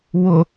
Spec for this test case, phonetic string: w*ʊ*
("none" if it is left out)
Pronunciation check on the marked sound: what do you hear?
ʊ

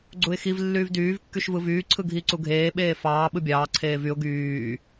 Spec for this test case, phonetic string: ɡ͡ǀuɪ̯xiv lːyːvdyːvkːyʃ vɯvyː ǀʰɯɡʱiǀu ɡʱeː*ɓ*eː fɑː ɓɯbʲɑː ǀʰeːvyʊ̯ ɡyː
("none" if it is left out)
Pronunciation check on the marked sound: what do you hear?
ɓ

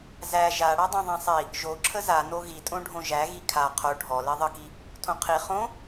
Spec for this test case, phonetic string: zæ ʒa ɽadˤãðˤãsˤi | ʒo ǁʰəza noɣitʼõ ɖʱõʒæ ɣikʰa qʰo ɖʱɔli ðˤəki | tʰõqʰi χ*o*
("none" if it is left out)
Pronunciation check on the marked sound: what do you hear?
õ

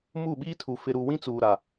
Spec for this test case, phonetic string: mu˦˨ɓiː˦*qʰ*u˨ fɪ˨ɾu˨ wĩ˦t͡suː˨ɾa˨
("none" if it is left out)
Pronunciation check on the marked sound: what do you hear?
tʰ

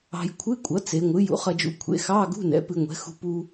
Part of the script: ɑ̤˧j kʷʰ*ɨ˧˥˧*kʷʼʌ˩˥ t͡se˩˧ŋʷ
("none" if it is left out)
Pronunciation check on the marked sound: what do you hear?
ɨ˧˥˧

